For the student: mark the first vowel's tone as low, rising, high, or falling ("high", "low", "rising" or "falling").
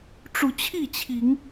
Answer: low